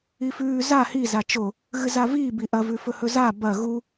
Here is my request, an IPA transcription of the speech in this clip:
i f ʉː z a h i z a t͡ʃ o | ɣ ɨ z a v iː b i ʔ ɐ v ʉ f ɵ h ɵ z a b ɐ ɣ u

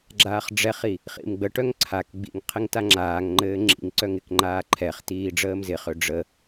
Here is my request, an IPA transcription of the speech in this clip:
ɡ͡ǁ aː χ ɖ͡ʐ ɛ χ i | χ ḭ m ɡ͡b ə ʈ œ ŋ ǀʰ a k ɡ͡b ḭ ŋ qʰ ɪ ŋ t a ŋ͡ǁ aː ŋ ŋ͡ǃ ɘː ŋ͡ǁ ḭ ŋ ǀ œ ŋ ɪ k ŋ͡ǃ aː ǃʰ ɛ χ t iː ɖ͡ʐ əː m z ɪ χ ø ɖ͡ʐ ə

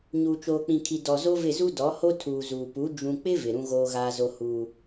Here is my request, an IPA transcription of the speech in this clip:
ɲ uː˨ t͡ʃ oː˨ k͡p ĩ˨ kʰ i˨ d ɔ˨ z o˦ v ɪ˦˨ z u˦ d ɔ˨˦ h o˦ tʰ uː˨ z uː˨ p u˨˦ d͡ʒ ũ˨ k͡p ɪ˦ v ɪ˨ ɾ ũ˦ ɣ oː˦ ɣ aː˦ z o˦ h uː˦

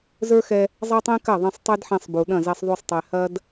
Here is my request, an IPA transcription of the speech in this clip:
z ə˞˦ x ɛ˧ | zˤ a˦ tˤ ẽ˦ k ɐ˦˨ ðˤ ẽ˧ sˤ tˤ e˦ d ħ ẽ˧ sˤ b u˨ ɗ ɐ̃˦˨ z ɛ˧ sˤ ðˤ y˧ sˤ tˤ ɛ˨ h ɐ˦ d

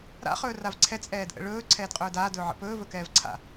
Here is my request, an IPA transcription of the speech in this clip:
ɾ a̰ χ ɵː r a v ǀʰ ɛ t͡sʼ ɛː d ʔ ə̰ ɭ ɵː ǀʰ ɛː d qʼ ɵː d aː d ɵː ʕ ə̰ p ɵː v ɵ k ɛː v ǀʰ a̰

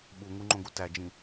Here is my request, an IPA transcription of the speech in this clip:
ɓ u ŋ u ŋ͡ǃ õ ɡ u t æ d͡ʒ ĩ

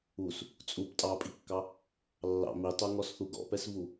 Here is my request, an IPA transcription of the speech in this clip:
u s | t͡sʼ u p tʼ ɑ pʼ i kː ɑ | lː ɑ̰ m i tˤ o ŋ ɔ s θ u ɡ ɔ̰ p ɛ s v u

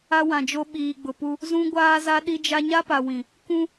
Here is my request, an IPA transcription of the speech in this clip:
a˦ w ã˨ d͡ʒ o˦ ɓ iː˨ ɡ͡b ʊ˨ p u˦ | z ũ˦ ɡʷ aː˦ z a˦ ɗ i˦ d͡ʒ a˦ ɲ a˦ p a˨ w ĩ˨ | k ũ˦

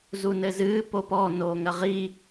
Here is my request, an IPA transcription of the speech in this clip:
z u n ɘ z ɨː p o p ɔ n oː ŋ ɐ ʁ i

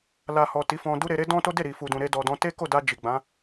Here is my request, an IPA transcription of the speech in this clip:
l a˧ h ɔ˨ t i˨˦ f ɔ̃˧ d u˦ ɾ e˧ ɾ e˦ d ɔ̃˦ t o˦ d e˦˨ ɾ i˨ f u˨ d ũ˨ ɾ e˧ d ɔ˨ d ɔ̃˧ t e˦ k o˦˨ d a˧ d͡ʒ i˨ ɡ͡b ã˨˦

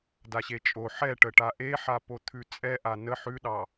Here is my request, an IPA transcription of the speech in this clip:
d a ɕ e t͡ʃʼ o ħ ɛ ʈ ə ʈ a ʔ e ħ a p o t̪ʰ ʉ t͡sʼ ɛ ʔ a n ə ħ ʉ ɗ ɑ

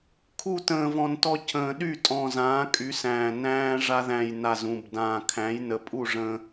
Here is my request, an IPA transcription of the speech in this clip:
kʰ u˥˩ t ə̃ː˨˩ v ɔ̃˨˩ n t ɔ˧ c ə̃ː˨˩ ɗ y˥˩ tʼ ɔ̃˨˩ z ãː˩˥ kʼ y˩˥ s æ̃ː˨˩ n æ̃ː˧ ʐ a˧ ð æ̃˨˩ j n a˨˩ z ũ˨˩ b d ãː˨˩ kʰ æ̃˩˥ j n ə˩˥ pʼ u˥˩ ʐ ə̃˧

